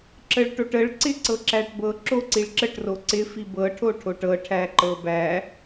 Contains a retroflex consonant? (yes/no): yes